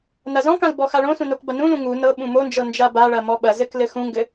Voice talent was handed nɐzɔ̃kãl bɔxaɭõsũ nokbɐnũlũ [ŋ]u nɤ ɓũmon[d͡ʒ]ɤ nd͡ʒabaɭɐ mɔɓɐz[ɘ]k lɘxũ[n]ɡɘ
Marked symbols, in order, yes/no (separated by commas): yes, yes, yes, no